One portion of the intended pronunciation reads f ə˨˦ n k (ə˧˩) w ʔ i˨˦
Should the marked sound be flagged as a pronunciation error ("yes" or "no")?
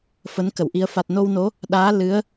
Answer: no